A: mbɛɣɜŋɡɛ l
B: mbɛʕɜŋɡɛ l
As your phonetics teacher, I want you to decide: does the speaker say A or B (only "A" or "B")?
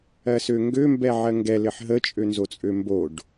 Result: B